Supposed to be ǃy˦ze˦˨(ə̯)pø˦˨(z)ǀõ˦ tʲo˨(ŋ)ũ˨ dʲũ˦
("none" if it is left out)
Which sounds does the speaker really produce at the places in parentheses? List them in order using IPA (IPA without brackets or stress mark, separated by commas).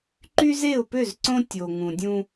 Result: ʊ̯, z, ŋ